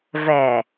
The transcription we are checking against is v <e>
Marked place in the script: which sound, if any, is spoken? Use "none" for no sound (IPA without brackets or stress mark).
ɛ